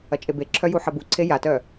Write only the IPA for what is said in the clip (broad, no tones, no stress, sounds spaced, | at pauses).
ɐ t͡ʃʼ e b e ǁʰ œ j u ħ ɐ b u ǀʰ e j a t œ